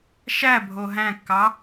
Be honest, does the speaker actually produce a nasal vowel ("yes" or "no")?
yes